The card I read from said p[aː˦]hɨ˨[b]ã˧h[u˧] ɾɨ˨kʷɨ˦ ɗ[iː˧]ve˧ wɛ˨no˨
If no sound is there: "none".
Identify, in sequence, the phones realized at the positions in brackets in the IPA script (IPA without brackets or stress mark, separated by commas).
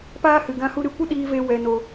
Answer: aː˦, ɡ, u˧, iː˧